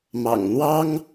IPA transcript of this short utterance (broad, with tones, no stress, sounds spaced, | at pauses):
m ɑ̰˨˩ ŋ n̪ w ɑ˥ ŋ